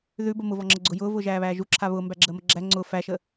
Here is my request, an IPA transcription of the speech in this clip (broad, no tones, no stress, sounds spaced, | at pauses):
ð ʉ b ə m ʊ v ɔ ŋ͡ǁ ə ɡ͡ǀ ʊ j ʊː v ʊː ʒ æː β æː ʒ u ǁʰ a β ʊː m b æ ɡ͡ǁ əː m ə ɡ͡ǁ æ ŋ͡ǀ ʊ f æ ʃ ə